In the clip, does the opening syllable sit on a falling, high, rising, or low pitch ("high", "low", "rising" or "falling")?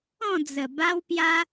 falling